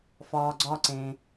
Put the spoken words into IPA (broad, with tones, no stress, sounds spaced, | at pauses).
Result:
f ɒː˩ ɡ͡ǀ ɒ˨ ǀ ẽ˩